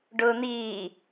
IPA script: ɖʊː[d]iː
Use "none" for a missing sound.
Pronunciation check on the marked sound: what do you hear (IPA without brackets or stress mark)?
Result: n̪